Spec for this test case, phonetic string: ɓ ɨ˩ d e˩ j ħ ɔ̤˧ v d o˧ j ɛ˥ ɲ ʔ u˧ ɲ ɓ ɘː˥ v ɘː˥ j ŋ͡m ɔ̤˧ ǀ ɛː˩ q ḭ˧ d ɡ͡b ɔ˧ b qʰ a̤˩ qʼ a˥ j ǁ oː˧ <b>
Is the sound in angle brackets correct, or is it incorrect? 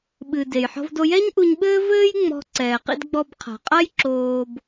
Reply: correct